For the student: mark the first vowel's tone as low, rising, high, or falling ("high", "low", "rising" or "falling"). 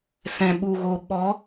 low